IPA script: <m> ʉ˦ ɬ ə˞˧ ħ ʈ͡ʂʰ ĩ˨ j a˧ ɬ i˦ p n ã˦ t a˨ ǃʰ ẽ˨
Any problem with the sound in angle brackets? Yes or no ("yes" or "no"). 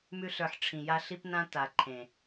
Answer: no